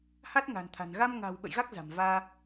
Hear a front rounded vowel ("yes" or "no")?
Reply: no